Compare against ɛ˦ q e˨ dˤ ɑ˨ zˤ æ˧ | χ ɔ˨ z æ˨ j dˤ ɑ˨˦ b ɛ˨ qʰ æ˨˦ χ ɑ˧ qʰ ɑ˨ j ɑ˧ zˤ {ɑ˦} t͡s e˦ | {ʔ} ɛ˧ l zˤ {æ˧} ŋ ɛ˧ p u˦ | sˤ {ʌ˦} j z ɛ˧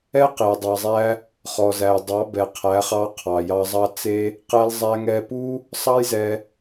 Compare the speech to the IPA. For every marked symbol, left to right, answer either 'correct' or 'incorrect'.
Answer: correct, incorrect: q, correct, incorrect: ɑ˦

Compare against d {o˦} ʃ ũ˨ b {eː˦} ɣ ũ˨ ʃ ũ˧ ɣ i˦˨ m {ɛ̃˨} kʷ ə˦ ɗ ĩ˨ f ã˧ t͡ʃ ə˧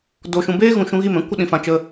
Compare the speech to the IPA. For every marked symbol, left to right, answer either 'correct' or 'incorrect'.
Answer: incorrect: o˨, correct, incorrect: ɛ̃˦

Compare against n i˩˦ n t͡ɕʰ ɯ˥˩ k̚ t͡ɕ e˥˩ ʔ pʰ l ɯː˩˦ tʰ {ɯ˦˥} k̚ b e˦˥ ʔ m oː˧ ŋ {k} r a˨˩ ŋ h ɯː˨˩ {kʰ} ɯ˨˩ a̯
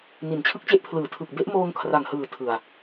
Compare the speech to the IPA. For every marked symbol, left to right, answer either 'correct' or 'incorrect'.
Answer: incorrect: ɯ˨˩, incorrect: kʰ, incorrect: tʰ

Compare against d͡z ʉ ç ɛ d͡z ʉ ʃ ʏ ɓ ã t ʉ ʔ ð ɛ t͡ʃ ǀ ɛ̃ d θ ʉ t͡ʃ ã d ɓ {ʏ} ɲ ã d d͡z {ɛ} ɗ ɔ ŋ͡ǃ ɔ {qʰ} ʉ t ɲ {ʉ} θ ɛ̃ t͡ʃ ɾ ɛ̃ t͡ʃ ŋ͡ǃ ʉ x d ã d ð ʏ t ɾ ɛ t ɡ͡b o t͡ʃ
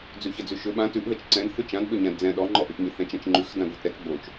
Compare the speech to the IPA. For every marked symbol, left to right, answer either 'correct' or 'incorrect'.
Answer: correct, incorrect: ɛ̃, incorrect: ʔ, correct

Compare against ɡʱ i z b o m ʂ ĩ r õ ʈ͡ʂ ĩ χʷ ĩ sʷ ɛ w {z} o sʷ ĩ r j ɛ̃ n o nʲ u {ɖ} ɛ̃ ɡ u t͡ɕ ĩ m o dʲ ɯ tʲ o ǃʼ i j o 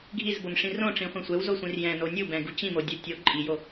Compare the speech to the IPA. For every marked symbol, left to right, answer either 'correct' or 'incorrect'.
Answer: correct, incorrect: b

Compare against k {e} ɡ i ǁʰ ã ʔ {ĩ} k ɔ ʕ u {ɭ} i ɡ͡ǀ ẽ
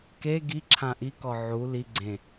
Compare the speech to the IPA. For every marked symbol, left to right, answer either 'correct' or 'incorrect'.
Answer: correct, incorrect: i, incorrect: l

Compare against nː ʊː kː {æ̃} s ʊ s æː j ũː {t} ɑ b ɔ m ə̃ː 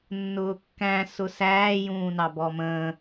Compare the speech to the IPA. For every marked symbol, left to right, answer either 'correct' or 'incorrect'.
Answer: correct, incorrect: n

